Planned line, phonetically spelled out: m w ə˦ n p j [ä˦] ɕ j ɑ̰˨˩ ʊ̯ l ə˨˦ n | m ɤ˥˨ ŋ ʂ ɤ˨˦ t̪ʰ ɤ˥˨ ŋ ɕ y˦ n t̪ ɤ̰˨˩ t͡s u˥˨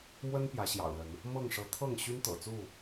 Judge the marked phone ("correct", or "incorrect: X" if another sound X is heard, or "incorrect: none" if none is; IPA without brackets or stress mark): incorrect: ä˨˦